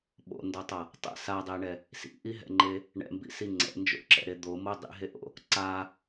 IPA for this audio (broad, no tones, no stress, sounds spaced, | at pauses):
ɓ o̰ n d ʌ tˤ ʌ | tˤ ɛ̰ s a dˤ e ɳ ɛ | s ḭ ʔ i ɦ ɛ̰ ŋ͡ǃ e | ɳ ɛ̰ m b ḭ s i ŋ͡ǀ ɛ̰ n d͡ʒ o̰ ǁ ɛ̰ ɾ e d̪ o m o dˤ ḭ ɦ e ʔ o̰ | ǀ a